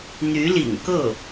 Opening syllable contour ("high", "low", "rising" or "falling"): rising